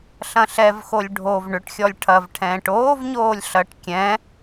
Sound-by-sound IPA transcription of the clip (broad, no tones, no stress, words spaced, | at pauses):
ɬɐ̃ɬɛvxolʲ ɖʱov ɳʏʈxʲɔlʲ ʈʰɐvʈʰɛ̃ːʈ oːvɲoːlʲ ɬɐʈ kʲɛ̃